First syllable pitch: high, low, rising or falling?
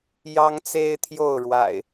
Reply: high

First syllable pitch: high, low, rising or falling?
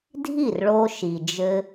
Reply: falling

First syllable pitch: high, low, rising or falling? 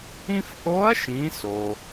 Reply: high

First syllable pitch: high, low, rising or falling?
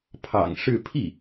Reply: low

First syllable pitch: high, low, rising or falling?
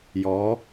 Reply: rising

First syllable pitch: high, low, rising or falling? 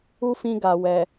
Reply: high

